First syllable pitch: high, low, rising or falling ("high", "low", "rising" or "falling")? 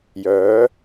rising